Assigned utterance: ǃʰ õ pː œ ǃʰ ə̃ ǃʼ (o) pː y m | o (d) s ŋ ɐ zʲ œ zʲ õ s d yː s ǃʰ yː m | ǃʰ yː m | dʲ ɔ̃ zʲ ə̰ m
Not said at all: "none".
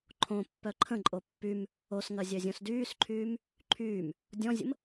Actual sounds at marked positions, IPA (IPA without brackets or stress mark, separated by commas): o, none